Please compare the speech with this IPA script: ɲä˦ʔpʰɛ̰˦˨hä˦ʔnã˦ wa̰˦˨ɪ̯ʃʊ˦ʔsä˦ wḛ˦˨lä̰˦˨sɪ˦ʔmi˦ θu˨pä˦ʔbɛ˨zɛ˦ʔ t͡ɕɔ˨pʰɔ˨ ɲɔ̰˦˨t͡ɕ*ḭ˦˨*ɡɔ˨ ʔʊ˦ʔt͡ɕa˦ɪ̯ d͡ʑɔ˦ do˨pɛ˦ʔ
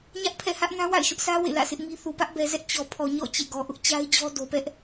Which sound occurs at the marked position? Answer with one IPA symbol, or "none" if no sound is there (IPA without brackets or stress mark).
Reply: ḛ˦˨